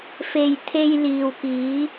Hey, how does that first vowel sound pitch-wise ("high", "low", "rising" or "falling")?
low